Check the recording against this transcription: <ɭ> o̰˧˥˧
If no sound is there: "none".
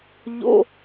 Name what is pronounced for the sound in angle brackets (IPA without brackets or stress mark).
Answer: ʎ